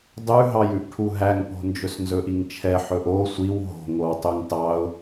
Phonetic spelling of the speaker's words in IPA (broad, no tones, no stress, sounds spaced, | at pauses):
dˤ ʉ ɦ ɑ j ʉ ʔ ʈʰ u ɦ æ ŋ p o̤ n d͡ʒ ɵ s n z ɵ ʔ i ŋ t͡ʃʰ ɛ ħ ɵ ʔ o sʷ i w ɦ o̤ ŋ o w tˤ ʉ ŋ t ɑ ʊ̯